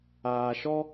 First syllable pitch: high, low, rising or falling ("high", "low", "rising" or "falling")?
low